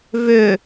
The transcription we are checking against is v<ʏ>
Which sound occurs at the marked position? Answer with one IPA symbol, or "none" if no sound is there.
ʏ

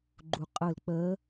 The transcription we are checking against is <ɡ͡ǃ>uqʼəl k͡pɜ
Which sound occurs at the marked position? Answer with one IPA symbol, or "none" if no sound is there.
ɡ͡ǃ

